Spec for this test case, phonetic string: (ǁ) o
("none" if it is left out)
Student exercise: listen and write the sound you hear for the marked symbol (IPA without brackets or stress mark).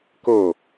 k